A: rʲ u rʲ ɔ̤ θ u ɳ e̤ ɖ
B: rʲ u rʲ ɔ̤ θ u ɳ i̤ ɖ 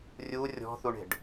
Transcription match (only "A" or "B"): A